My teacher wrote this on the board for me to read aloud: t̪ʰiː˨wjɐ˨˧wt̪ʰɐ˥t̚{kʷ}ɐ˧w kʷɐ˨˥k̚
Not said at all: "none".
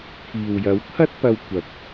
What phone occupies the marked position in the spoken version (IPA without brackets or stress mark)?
p